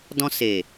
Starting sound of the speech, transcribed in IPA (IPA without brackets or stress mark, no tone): d